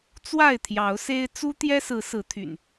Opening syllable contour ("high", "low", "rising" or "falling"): falling